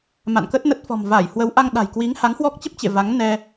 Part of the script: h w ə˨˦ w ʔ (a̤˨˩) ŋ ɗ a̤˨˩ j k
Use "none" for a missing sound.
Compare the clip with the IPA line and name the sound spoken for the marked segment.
a˧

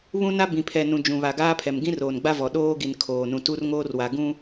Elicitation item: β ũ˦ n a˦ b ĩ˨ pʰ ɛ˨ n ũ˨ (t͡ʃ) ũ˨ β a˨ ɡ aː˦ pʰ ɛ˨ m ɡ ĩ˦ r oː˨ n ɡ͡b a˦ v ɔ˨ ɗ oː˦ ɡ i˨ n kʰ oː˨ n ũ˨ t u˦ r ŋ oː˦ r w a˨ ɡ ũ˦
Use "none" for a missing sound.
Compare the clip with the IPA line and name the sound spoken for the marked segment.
d͡ʒ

